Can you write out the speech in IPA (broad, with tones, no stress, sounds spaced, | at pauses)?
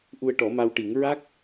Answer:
ʔ u˧ ə̯ ʈ ɔ˨˩˦ m a˧ w ʈ i˨˩˦ ŋ ɹ a˦˥ k̚